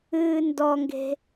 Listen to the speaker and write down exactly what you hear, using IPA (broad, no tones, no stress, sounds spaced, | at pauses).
ɨː n d ɔ ŋ ɡ e̤